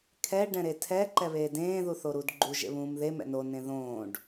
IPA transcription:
kʰ ɛ ɖ ɛ̃ ɾ e tʰ ɛ ǃ ɛ β eː d ẽː ð u θ o ɾ u d ɡ͡ǃ u ʒ ḛ β ũː m ð e m ɛ̰ n o n ẽ ð õː ɖ

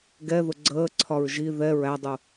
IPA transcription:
ɡ ɛ ð ʊ ɡ͡ǀ əː ǀʰ ɒ ɹ ʒ i ð ɛ ɹ æ dˤ u

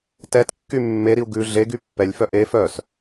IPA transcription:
t ɛ t kː y mː e ɾ i u̯ ɡ ʉ ɮ e ɡ y pː ɛ lʲ f œ ʔ e f œ s

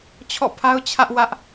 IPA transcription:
t͡ɕʰ ɔ̰˦˨ pʰ a˦ ʊ̯ t͡ɕʰ ä˦ ʔ w ä˦ ʔ

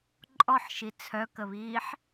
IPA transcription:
ǃʼ ɔ ħ ʃ i t͡sʰ œ k ə β iː ħ

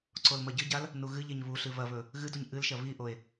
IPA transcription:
ǀ o l m ɐ ɟ ɨ ɟ a l | n u ɣ ɨ ʎ e ɲ β u ɬ ɨ β ɐ β ɵ | ɣ ɨ d u ɲ ʔ ɨ l ʃ ɐ β i ʔ o e̯

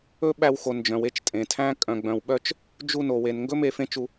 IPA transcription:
ɵ˦ ɓ æ˧ w x o˨ n d͡ʒ œ̃˨ w e˦ t͡ʃ tʼ ẽ˨ tʰ æ̃˦ kʼ œ̃˨ ɡ͡b œ̃˨ w ɓ œ˦ t͡ʃ | d͡ʒ u˧ n o˨ w e˨ n ŋ ɡ ɵ˦ m e˧ f ẽ˦ t͡ʃ u˧

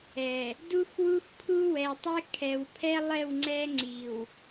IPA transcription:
ɛ˨ | d u˦ x w u˦ x pʰ u˦ w ɛ˨ tˤ ɛ˦ kʰ ɛ˨ w pʰ ɛ˦ lˠ ɛ˦˨ w ŋ͡ǀ ɛ˦ ŋ͡ǀ i˨ w

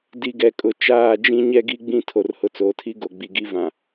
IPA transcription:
d i˨ ɡ ɛ˨ kʼ ʊ˨ t͡ʃ aː˦˨ d͡ʒ ĩ˦ ɲ ɛ˦ ɡ i˦ ɡ͡b ĩ˦ tʰ o˨ r h ʊ˨ t͡s oː˨ tʰ i˦ ɡ o˨ ɡ͡b i˨ ɡ i˦ v ã˨

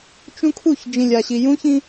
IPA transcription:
t͡ʃ ũ˦ kʰ u˦˨ ç d͡ʒ ĩ˨ lʲ a˨ ɕ i˨ j ũ˦ ç ĩ˦

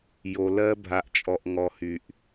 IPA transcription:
j o˨ l ɜ˦ bʱ a˨ ʔ t͡ʃʼ ɔ˨ ʔ ŋ ɔ˨ h y˨ ʔ

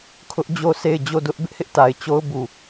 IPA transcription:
kʰ ʊ˦ ʔ d͡ʑ o˦ sʰ e˦˨ ɪ̯ d͡ʑ o˦˨ d ʊ˦ ʔ b ɪ˦ ʔ h ɪ˦ ʔ t a˨ ɪ̯ t͡ɕ o˦ ʊ̯ b u˨

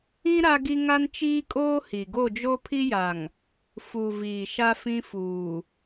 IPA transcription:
ĩ˦ ɾ a˦ ɡ i˦ ŋ a˦ n t͡ʃ iː˦ kʼ oː˦ h i˨ ɡ o˦˨ d͡ʒ o˦ pʰ i˦ j a˨ ŋ | f u˨ v iː˨ ʃ a˦ f ĩ˦ f uː˨

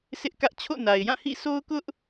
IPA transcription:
s ɪ˦ ʔ k ä˦ ʔ t͡ɕʰ o̰˦˨ n a˨ ɪ̯ j ã˦˨ h ḭ˦˨ sʰ o˦ ʊ̯ k ʊ˦ ʔ

